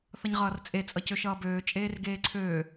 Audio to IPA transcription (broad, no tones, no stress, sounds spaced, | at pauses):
θ ʌ ɲ ʁ ʌː r t͡sʼ e t͡sʼ ʌ c ø ʃ ʌː b øː t͡ʃʼ eː r ɡ eː ǀʰ øː